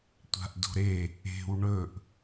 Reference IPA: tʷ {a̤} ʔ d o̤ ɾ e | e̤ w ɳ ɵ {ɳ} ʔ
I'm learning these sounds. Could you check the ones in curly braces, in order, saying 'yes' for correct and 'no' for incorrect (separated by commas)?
yes, no